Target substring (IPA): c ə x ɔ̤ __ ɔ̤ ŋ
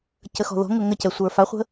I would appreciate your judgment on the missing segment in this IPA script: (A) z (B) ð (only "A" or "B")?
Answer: B